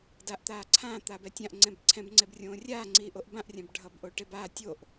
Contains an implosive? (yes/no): no